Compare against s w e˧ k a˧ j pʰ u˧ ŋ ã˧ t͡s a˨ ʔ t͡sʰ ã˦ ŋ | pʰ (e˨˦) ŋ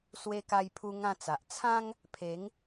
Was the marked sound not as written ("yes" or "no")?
no